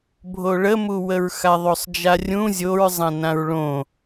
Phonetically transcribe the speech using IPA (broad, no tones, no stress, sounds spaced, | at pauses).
bʱ o ɭ ə m u w ə ɹ x a ðˤ o sˤ d͡ʒ a rʲ ũ zʲ o ɹ zˤ ã n ã ɹ ɭ õ